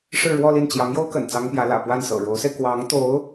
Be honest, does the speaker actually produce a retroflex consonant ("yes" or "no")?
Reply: yes